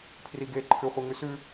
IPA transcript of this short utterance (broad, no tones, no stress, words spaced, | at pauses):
pʰriɡe ǃʰʉχʷɨŋʉsʉ